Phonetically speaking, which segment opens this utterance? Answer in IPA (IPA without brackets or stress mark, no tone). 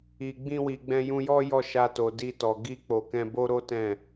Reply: i